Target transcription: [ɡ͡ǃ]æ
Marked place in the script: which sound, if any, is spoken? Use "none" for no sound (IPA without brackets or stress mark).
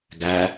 ɡ